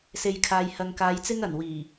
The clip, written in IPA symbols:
s e˨ j kʰ aː˨ j h ɐ˨ ŋ k aː˨˧ j t͡s ɪ˥ ŋ ɐ˨˩ n w iː˨˩

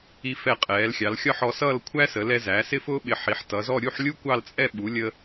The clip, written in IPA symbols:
i˧ f ɛ˧˩ qʼ ɛː˩˧ l xʲ ɑ˩˧ l xʲ ɒ˥˧ ħ ɔ˧ s ʌː˥˧ l kʷʰ æ˥ s ə˩˧ l ɛ˧ z æ˩˧ s ɪ˥˧ f ʊː˥ ɓ ɪ˧˩ ħ i˩˧ ħ t ʌ˩˧ z ɔ˥˧ ɾʲ u˥˧ ħ lʲ u˥ kʷ ɑ˥˧ l t͡sʼ ɛ˥˧ ɓ u˩˧ lʲ ə˧

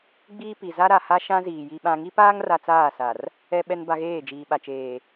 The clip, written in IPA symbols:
ɡ͡b iː˦ p i˨ z a˦ ɾ a˨ h a˦ ʃ ã˦ z iː˨ j i˨ ɓ ã˨ ŋ i˦ p aː˦ ŋ r a˦ t͡s aː˦˨ s a˨ r | ɛ˦ ɓ ɛ˦ n b a˦ ɣ eː˦˨ d͡ʒ iː˨ ɓ a˨ t͡ʃ eː˨

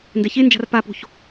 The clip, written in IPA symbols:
n d ɛ ç e n d͡ʒ a̤ r p a p o̤ ç

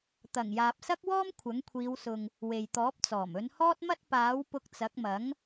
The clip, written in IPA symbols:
t̪ ɐ˨˩ ŋ j aː˨ p̚ s ɐ˥ k̚ w ɔː˥ m kʷʰ ɐ˨˥ ŋ kʷʰ iː˨˧ w s ʊ˨ ŋ | w e˨ j t̪ ɔː˨˥ p̚ t͡s ɔː˨˩ m ɵ˨˧ n h ɔː˥ t̚ m ɐ˥ t̚ p aː˨˥ w p ʊ˧ k̚ t͡s ɐ˨˥ k̚ m ɐ˨˥ ŋ

